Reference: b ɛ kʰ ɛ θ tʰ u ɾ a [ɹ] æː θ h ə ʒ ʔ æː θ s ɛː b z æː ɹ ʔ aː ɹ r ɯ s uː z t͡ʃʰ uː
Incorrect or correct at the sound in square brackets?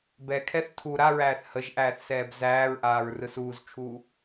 correct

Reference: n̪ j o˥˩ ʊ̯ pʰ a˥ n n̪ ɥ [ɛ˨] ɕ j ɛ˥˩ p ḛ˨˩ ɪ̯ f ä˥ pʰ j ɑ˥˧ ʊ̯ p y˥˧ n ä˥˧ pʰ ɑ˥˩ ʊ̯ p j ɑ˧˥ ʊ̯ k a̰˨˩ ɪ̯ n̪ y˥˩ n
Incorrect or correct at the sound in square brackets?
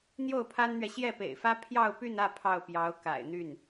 correct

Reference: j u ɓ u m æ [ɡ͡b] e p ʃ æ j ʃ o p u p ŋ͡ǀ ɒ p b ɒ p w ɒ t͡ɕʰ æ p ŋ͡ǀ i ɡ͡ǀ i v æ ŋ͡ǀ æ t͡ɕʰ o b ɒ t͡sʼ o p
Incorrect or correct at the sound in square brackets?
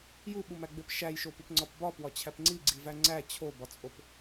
correct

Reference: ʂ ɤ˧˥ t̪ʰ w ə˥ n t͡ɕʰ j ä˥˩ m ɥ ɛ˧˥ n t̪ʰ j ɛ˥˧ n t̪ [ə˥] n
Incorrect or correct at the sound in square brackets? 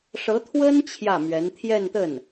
incorrect: ə˥˩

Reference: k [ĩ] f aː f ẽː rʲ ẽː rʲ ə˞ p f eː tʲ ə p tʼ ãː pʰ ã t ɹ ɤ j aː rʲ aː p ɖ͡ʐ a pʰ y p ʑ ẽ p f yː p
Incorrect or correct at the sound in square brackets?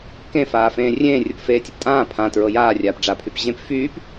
incorrect: ẽ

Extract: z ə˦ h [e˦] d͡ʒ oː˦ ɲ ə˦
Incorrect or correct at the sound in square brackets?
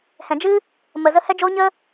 incorrect: ɛ˦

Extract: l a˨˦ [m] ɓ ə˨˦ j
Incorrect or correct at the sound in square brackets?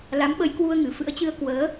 correct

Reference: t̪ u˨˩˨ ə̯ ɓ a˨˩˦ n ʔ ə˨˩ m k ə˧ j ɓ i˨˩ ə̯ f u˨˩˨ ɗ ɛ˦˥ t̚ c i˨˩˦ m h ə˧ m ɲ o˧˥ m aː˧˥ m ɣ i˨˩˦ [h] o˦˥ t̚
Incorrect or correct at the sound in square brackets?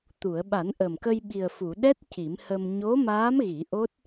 incorrect: ʔ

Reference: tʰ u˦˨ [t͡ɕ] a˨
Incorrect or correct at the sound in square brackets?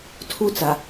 incorrect: t͡s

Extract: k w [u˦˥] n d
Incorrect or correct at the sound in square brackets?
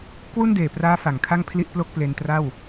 incorrect: u˥˩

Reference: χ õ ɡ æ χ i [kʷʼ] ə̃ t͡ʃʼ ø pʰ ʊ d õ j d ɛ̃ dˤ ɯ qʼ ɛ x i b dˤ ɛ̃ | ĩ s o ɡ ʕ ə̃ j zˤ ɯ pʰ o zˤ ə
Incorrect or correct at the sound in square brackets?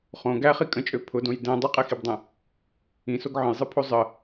incorrect: kʼ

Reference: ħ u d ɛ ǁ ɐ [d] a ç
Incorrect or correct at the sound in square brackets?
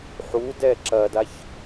correct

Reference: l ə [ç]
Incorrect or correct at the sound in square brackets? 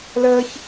correct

